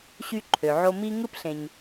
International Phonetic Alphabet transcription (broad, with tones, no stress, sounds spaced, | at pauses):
ɕ y˦ ǃʰ ø˩ ʕ o˦ m i˦ ŋ ɯ˥ p ɬ ẽ˨ ɲ